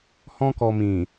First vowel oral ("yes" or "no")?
no